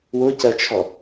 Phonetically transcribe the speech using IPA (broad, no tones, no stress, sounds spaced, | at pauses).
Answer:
w ʊ c ɜ t͡ʃʰ ɔ